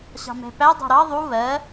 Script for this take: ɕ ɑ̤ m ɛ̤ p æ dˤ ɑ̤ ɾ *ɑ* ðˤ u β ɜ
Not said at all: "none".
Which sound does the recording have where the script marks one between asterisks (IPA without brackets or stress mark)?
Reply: ɑ